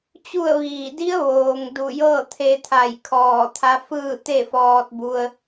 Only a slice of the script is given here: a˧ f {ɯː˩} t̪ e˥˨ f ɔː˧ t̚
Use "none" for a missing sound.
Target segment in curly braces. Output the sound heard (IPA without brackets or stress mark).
ɯː˥˨